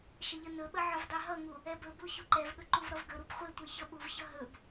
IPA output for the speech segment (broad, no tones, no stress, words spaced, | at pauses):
ʃəʎənɵɓə ʕɵvdˤeɦʌŋu | ɛbɵbu çuǃɛvɠɵ ǃuvɾʌvɡɵɾub χʷetʷe çʌɓuvçʌ ɦɵb